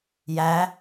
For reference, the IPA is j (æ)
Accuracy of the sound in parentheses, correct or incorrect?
correct